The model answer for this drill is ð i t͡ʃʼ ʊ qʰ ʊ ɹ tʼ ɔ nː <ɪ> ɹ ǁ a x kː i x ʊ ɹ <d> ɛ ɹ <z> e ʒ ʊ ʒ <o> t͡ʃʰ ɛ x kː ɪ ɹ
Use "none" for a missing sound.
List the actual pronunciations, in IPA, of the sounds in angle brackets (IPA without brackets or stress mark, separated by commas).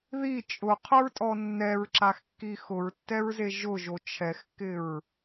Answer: ɛ, tː, z, o